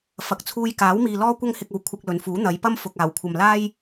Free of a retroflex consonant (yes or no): yes